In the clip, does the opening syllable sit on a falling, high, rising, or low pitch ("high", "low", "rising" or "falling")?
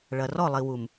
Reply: low